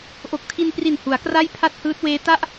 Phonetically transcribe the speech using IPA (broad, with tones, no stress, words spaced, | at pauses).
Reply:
ʔo˨˩k̚ tʰi˧npri˨˩n hu˩˦a̯kra˥˩j pʰa˥˩t̚hɯː˦˥t̚weː˦˥ ta˥˩ʔ